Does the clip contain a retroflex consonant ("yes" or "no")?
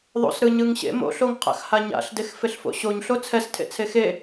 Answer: no